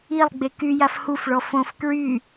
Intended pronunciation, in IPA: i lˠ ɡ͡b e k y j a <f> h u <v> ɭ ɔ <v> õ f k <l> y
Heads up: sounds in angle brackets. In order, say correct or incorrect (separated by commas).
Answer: correct, incorrect, incorrect, incorrect